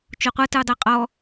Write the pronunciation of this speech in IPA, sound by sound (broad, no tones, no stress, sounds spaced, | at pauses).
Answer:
t͡ʃ o qʷ ɤ t ɯ u̯ dˤ e qʼ ɔ